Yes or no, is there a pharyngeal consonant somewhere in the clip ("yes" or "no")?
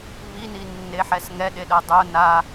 yes